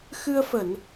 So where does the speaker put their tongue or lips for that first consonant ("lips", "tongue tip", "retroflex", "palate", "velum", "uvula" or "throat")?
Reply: velum